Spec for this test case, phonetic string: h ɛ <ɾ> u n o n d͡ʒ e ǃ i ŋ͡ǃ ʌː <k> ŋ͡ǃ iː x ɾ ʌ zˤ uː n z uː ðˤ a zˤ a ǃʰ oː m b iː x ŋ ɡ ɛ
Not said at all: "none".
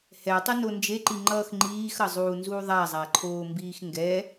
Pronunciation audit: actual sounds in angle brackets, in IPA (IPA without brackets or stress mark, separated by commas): tˤ, x